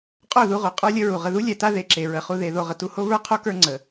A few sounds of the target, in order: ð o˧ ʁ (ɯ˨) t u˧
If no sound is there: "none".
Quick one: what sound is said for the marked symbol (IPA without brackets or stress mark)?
ə˨